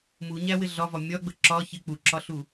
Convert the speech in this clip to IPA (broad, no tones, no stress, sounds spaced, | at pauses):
m u ɲ æ w ɪ ɮ ɒ v ɒ mʲ ɒ ɡ͡b ə ǁ ɒ ç ɪ k͡p u ǁ ɒ ɬ u